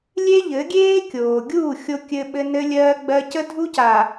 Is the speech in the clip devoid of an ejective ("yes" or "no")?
yes